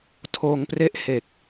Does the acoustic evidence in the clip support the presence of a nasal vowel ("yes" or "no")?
no